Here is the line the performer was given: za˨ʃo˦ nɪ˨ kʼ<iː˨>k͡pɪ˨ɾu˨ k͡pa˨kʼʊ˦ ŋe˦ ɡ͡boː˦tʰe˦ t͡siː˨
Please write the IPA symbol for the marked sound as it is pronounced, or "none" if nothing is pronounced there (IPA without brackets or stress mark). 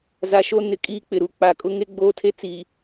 iː˦